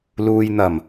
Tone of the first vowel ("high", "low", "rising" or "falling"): low